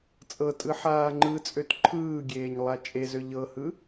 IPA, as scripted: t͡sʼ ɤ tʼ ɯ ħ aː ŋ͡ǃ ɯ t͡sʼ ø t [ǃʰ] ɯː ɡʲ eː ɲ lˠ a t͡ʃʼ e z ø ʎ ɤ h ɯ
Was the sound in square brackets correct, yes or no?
yes